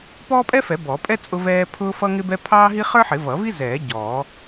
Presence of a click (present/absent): absent